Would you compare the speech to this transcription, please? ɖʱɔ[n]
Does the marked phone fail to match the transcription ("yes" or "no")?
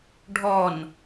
no